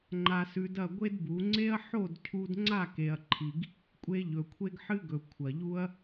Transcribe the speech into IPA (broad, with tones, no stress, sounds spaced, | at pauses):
ŋ͡ǃ a˧ s ʉ˧ d ɐ˦˨ ɡʷ e˦ d b u˨˦ ŋ͡ǀ e˦ ɐ̯ ħ o˦˨ d cʰ u˦ d ŋ͡ǀ a˦˨ k e˨ ɐ̯ ǃʰ i˨ ɡ | kʷʼ e˧ ʎ ɵ˨ kʷʰ e˧ ɡ ħ ɨ˦ ɡ ɵ˨ kʷʰ ɐ˨ ʎ u˦ ɐ̯